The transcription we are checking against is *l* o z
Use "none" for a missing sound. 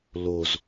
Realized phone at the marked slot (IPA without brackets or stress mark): l